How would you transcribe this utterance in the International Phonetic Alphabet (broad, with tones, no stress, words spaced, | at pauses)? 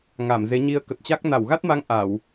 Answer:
ŋa˧˩mze˨˦ɲi˧ə̯ kə˨˩t̚t͡ɕa˦˥k̚ na˧˩wɣa˦˥t̚ma˧ŋ ʔa˧˩˨w